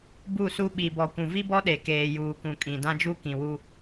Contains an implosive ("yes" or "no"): yes